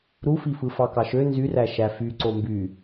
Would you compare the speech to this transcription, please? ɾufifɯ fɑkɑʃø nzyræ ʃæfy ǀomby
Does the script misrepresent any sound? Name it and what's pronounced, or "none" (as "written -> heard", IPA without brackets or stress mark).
none